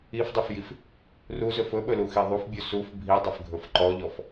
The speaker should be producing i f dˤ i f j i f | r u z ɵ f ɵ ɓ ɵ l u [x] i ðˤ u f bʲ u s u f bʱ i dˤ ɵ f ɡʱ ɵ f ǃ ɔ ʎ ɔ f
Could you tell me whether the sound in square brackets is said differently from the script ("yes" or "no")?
no